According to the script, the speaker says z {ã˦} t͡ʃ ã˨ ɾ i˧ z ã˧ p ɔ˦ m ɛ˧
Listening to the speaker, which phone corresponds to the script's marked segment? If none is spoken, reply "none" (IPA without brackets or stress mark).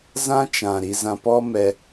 ã˦